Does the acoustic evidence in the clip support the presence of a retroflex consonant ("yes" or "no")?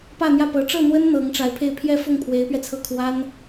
yes